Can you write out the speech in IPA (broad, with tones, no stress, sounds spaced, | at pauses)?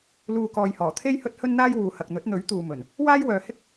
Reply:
l uː˨ k ɔː˨ j h ɔː˨˩ t̪ʰ e˥ j h ɵ˥ t̚ h ɵ˥ n n̪ aː˥ j w uː˨ h ɐ˨ k̚ n̪ ɵ˨˥ t̚ n̪ ɵ˨˥ ɥ t̪ uː˨ m ɵ˨˩ n | w aː˥ j w œː˨ h ɪ˥ k̚